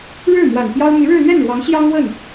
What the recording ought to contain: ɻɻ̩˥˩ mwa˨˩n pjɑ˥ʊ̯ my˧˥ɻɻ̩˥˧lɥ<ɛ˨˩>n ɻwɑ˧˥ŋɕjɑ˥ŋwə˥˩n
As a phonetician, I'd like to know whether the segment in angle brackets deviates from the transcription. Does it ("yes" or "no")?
yes